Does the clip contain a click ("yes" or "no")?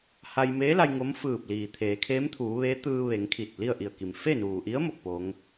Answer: no